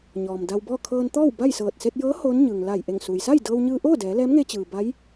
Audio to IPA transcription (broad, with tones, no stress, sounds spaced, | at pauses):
ɲ ɔː˩ m d a˧ w b ɔː˥˨ kʰ ɤː˧ n t̪ ɔː˥˨ w b a˥˨ j s ɤː˧˩ t̚ s e˧ t̚ j ɤː˧˥ h oː˧˥ n ɲ ɯː˩ ŋ l a˧˩ j ʔ e˧˩ ŋ s uː˩ j s a˥˨ j d ɤː˧ w ɲ ɯː˧ ʔ oː˥˨ d ɛː˩˧ l ɛː˧˥ m ŋ e˧ t͡ɕ ɯː˩ b a˧˥ j